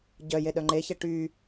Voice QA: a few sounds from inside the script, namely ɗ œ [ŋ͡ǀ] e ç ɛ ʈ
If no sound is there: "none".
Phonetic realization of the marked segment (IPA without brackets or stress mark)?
ŋ͡ǃ